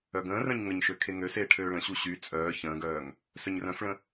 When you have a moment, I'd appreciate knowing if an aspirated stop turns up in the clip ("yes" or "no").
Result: yes